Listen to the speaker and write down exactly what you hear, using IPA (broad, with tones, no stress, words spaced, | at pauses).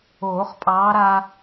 oː˨˩˦χpʼɑː˨˦ ɾa˦